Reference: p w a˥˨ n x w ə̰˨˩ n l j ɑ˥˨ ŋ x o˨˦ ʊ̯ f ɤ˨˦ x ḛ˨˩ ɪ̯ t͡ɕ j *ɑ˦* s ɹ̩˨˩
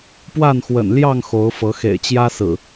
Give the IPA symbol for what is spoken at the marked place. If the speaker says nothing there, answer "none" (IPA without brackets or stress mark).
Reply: ä˦